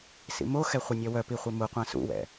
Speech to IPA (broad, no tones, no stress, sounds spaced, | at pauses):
s ḭ m o x ɛ χʷ e nʲ œ w œ p i χʷ i m u qʷ ã s ṵ w ɛ̰